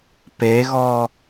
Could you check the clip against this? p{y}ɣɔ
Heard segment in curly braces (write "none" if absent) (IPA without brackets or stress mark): e